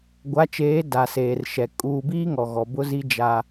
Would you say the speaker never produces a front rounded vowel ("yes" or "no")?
yes